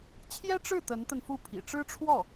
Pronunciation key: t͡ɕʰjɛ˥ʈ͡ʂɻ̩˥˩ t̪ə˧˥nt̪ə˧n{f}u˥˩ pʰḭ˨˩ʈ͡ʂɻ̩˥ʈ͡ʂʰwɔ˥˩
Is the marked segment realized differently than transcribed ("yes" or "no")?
no